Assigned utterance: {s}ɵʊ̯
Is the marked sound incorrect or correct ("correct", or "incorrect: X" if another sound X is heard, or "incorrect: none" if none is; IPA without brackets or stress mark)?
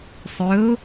incorrect: sˤ